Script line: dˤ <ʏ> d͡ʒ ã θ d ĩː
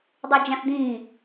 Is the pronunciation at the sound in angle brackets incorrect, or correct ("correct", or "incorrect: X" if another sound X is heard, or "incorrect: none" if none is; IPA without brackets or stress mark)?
incorrect: u